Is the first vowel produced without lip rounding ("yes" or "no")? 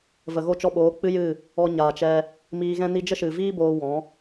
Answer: yes